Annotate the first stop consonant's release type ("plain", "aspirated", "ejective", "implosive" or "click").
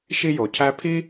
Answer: aspirated